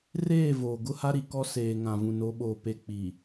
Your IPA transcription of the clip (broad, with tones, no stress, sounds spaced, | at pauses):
r eː˦˨ v oː˨ ɡ ʊ˦ h a˦ ɾ i˨ k ɔ˦ s eː˨ ŋ ã˨ v ũ˨ n o˨˦ ɓ oː˨ p e˨ k͡p i˨